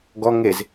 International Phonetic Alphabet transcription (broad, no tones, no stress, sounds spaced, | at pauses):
ɡ ɔ ŋ e z